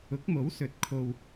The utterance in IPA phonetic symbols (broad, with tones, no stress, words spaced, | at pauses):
ʊ˨˥k̚mo˨˥wsɵ˨˥t̚ kʰo˧w